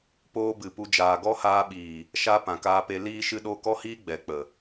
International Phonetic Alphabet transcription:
p oː˦ b ɨ˨ p u˧ d͡ʒ aː˨ ɡ ɔ˦ h aː˧ ɓ iː˨ | ʃ a˦ p ã˨ k aː˧ p e˧ l iː˦ ʃ ɨ˧ ɗ o˧ k ɔ˦ h iː˦ ɡ͡b ɛ˨ k͡p ə˨

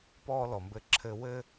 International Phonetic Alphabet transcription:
p ɔː˦ l ɔ˨ m b ɘː˦ ǁʰ ɘː˦ w ɘ˦

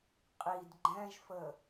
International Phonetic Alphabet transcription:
qʼ i d ɡ͡ǃ ɛ̃ ʒ f ə

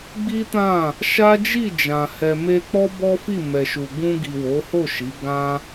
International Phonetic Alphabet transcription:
ɡ͡b i˦ t ã˦˨ | ʃ a˦ d͡ʒ i˦˨ d͡ʒ ã˨ h ɛ˨ m e˧ k͡p ɔ˦ b ɔ˦ f i˦˨ m ɛ˨ ʃ u˨ ɡ ũ˧ ɡ i˨ w o˨˦ h o˦˨ ʃ i˨˦ ɡ ã˧

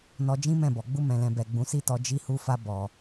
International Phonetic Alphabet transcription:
n ɔ˧ d͡ʒ ĩ˦ m ɛ̃˦˨ b ɔ˨ ɡ͡b u˧ m ɛ̃˨ l ɛ̃˨ b ɛ˨ ɡ͡b ũ˨˦ s i˦ t ɔ˧ d͡ʒ i˧ h u˧ f a˧ b ɔ˨

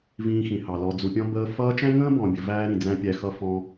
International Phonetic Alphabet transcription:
v ĩː˧ x ĩ˨ h ɑ˨ l ɔ˨ d͡z u˨ pʲ ɔ̃˧ b əː˧ f ʌː˧ t͡ʃ æ̃˦ ŋ ə̃ː˦ b ɔ̃˨ bʲ ə˨ v æː˦ ɾ ĩ˨ d͡z æ̃˦ pʲ æ˧ x ʌ˧ f ɔ̃˧

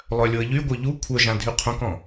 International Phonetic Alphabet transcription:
lˠ œ lʲ o ə̯ ʎ y ɡʷ œ ʎ u kʷʰ œ ʒ ã dʱ y qʰ õ k ɔ̃

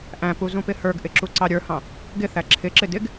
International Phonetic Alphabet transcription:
ʔ æ̃ p u z ũ p ɪ h ə˞ ɡ ʔ ɪ ǁ u ǀ ɑ ɾʲ ə˞ h ɑ̃ | ɡ ɪ θ æ ǁʰ ɪ ǁ ɪ d ɪ ɡ

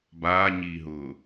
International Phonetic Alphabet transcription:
b aː ɲ iː ɦ ʊː

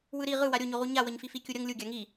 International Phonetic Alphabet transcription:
w ɯ ɾ i ʁ ɯ w a ɾʲ o ɲ o ʁ u ɲ a w ʌ ɲ f i f i kʲ u ɾʲ ʌ ŋ lʲ u ɡʲ a ŋ i

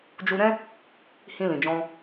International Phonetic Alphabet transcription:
d͡ʒ u˧ ɾ ɛ̃˦ | h ĩ˧ l ĩ˨ d͡ʒ ɔ̃˧

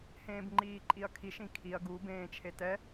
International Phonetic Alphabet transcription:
h ẽː b ŋ͡ǃ iː ǃʼ i ɐ̯ kʰ i ʃ ĩ kʰ i ɐ̯ ɡ u b ẽː t͡ʃʰ e t ɛ

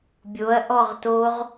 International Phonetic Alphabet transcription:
bʲ o ɐ̯ ʔ ɔ ʁ t o ʁ

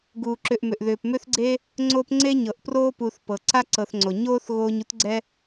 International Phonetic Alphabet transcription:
ɡ uː˩ ǁ ʏ˨ ʔ m ʏ˩ ʔ ð ʏː˩ p m ʏ˦ θ ɡ͡ǀ e˦ | ŋ͡ǀ o˦ p ŋ͡ǀ e˥ ɲ ɤ˩ ʔ p r oː˦ p u˨ θ p ɤ˩ ǀ a˥ ǀ ɤ˨ θ ŋ͡ǀ o˩ ɲ oː˥ θ ɣ oː˦ ɲ u˥ t ɡ͡ǀ ɛ˥

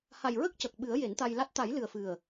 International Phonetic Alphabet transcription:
h a˨˩ j ɹ ə˦˥ k̚ c ə˨˩ k̚ ɓ ɨ˨˩˦ ə̯ j e˨˩˦ n t̪ a˧ j l a˦˥ t̚ t̪ a˨˩˦ j l ɨ˨˩ ə̯ f ɨ˨˩ ə̯

